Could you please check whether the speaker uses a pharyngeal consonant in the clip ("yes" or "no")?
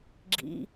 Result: no